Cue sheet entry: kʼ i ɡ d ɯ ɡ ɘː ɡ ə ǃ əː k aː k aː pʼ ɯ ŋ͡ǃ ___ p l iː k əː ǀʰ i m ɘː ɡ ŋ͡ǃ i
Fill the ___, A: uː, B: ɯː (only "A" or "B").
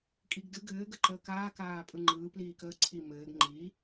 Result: B